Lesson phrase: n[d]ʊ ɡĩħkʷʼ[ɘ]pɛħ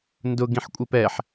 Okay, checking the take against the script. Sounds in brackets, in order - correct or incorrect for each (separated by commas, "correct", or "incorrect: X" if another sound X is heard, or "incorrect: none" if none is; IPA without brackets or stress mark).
correct, incorrect: e